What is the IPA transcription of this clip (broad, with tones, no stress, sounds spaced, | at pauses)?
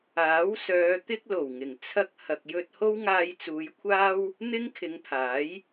aː˨˥ w s œː˨˧ t̪ ɪ˥ k̚ l o˨˩ w ŋ ɪ˨˩ ŋ t͡sʰ ɐ˥ k̚ h ɐ˧ k̚ j ɵ˥ t̚ h o˥ w ŋ aː˧ j t͡s uː˨˧ j kʷʰ aː˥ w | n̪ ɪ˥ ŋ kʰ ɪ˨˧ ŋ pʰ aː˨˥ j